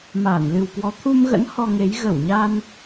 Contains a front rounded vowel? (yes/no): no